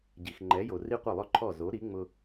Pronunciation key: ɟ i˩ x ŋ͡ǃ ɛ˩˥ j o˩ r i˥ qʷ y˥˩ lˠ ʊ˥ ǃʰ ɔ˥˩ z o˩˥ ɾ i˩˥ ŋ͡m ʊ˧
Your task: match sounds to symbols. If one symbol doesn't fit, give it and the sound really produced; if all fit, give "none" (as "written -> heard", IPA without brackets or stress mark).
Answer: y˥˩ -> ɪ˥˩